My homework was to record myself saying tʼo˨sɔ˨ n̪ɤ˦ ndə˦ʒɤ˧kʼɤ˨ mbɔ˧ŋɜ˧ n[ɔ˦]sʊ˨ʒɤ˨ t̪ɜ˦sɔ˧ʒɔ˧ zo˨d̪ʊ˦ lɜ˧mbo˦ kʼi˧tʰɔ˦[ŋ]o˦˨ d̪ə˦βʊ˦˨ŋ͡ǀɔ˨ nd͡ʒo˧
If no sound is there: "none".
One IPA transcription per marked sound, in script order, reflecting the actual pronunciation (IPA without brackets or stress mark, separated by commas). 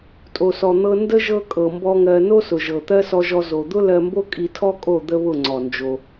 o˦, kʼ